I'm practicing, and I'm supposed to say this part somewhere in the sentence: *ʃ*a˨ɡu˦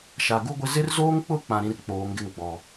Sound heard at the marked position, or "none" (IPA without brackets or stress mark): ʃ